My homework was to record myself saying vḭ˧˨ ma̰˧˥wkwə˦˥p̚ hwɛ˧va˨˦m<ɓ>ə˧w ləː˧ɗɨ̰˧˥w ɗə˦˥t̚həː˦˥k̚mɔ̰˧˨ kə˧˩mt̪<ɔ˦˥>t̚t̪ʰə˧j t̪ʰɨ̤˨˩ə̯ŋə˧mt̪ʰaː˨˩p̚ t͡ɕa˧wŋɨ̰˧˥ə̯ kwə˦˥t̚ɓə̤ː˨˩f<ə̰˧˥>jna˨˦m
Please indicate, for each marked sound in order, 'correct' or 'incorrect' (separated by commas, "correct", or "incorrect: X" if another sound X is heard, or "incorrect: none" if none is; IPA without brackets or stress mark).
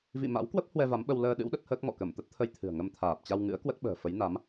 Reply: correct, incorrect: ə˦˥, incorrect: ə˨˦